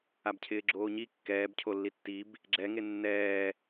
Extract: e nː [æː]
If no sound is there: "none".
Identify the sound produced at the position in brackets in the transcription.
ɛː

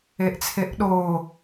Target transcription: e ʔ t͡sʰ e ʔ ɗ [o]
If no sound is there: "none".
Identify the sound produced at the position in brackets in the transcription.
o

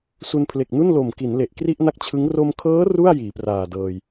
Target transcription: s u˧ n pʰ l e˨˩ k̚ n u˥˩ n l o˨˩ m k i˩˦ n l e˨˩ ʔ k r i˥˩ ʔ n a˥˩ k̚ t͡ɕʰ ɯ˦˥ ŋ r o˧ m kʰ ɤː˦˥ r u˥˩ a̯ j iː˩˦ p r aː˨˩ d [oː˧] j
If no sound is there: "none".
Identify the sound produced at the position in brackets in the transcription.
ɤː˧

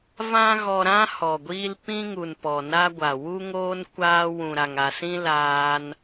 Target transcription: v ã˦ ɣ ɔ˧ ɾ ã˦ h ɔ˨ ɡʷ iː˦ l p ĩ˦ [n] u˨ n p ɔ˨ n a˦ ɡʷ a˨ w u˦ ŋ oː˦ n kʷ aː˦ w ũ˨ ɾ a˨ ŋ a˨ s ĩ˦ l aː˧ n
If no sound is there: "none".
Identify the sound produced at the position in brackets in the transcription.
ŋ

